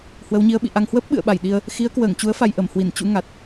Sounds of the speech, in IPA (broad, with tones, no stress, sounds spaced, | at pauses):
h w ə˨˦ w ɲ i˨˦ ə̯ ɓ ḭ˧˨ ʔ a˧ ŋ h w əː˦˥ p̚ ɓ ɨ̰˧˨ ə̯ ɓ a˧˩ j ɗ i˧ ə̯ | x i˨˦ ə̯ k w əː˧˩ ŋ t͡ɕ u˨˦ ə̯ f a˧ j ʔ ə˧˩ m h w i˧˩ n t͡ɕ ṵ˧˥ ŋ a˨˩ t̚